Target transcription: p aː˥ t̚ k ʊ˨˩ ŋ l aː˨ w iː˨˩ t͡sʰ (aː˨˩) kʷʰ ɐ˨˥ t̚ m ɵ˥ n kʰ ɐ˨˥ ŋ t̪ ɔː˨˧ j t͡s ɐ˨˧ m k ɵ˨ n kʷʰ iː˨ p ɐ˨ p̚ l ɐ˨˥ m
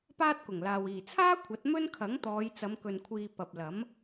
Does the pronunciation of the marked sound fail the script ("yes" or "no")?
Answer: yes